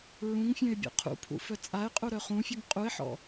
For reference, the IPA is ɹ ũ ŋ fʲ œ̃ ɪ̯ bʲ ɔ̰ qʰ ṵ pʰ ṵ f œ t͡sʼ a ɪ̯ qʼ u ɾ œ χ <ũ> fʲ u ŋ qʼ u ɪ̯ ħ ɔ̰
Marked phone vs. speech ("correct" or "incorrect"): correct